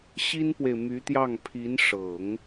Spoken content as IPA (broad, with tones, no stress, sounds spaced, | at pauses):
ɕ i˥ n p w e˨ ɪ̯ m y˧˥ t̪ j ɑ˥˩ ŋ pʰ i˧˥ n ʂ ɤ˨˩˦ ŋ